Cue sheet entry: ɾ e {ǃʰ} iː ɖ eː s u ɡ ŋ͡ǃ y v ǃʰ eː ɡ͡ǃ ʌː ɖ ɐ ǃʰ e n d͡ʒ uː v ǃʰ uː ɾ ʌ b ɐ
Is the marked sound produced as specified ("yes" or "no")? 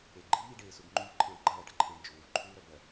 no